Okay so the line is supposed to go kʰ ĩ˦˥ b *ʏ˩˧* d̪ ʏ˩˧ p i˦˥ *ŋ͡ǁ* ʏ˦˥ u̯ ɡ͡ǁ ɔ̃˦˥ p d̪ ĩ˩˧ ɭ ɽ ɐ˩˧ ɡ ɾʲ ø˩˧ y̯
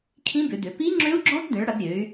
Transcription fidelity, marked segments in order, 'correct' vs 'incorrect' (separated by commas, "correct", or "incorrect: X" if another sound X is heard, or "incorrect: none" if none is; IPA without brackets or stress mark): correct, correct